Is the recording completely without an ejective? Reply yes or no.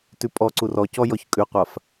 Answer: no